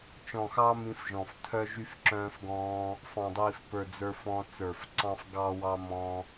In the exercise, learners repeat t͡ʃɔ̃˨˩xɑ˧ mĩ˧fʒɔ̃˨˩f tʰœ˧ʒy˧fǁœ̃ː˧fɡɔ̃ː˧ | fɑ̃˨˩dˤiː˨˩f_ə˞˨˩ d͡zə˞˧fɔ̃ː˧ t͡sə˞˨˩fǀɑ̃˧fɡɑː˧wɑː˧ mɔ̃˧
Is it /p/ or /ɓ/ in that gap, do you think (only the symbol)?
p